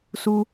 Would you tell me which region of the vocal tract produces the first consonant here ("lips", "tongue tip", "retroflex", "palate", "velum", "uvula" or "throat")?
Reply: tongue tip